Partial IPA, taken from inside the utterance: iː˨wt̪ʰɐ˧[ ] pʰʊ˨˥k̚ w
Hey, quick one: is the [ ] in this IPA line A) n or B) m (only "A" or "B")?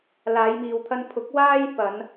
A